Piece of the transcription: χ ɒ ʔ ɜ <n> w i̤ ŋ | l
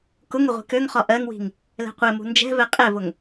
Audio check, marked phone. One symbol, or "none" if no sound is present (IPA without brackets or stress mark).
ŋ